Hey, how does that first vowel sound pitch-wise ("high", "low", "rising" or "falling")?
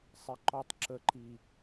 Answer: low